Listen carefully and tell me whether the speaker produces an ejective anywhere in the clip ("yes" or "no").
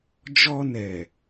no